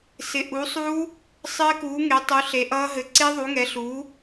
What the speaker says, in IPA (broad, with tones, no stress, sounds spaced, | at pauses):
s ɪ˨˥ ʔ u˨˥ sˤ uː˦˥ | sˤ ɘː˦˥ k uː˨˥ ŋ e˨˥ tˤ u˨˥ ɬ e˨˥ ʔ ʌː˦˥ ɦ ɘ˨˥ ǀ e˦˥ ðˤ u˨˥ ŋ ɛ˨˥ ɬ uː˨˥